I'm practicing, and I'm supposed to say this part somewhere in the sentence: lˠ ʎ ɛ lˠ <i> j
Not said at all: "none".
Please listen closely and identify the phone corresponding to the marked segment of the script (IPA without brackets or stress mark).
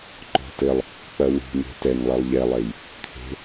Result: e